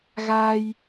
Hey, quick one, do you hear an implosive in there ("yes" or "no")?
no